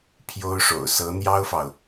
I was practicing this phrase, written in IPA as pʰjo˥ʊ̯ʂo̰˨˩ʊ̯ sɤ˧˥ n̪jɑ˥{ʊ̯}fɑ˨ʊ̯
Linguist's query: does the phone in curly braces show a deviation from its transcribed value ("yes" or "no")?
no